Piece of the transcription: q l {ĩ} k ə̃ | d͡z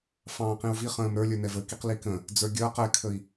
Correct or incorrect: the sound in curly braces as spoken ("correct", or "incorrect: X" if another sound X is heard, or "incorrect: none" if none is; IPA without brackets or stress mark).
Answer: incorrect: i